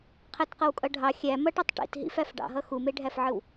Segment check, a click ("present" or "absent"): absent